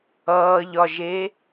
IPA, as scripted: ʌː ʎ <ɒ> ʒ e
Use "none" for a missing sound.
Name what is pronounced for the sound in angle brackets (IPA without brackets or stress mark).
ɒ